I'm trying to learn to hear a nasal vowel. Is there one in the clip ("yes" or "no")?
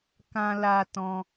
yes